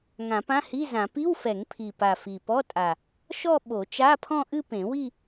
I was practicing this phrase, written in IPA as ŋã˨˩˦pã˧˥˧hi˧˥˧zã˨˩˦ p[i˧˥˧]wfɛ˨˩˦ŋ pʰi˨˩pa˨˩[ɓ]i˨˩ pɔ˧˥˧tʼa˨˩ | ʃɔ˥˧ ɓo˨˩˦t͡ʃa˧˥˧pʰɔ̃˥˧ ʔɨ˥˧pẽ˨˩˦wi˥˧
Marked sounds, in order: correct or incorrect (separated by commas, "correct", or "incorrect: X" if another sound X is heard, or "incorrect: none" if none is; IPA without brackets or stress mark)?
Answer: correct, incorrect: f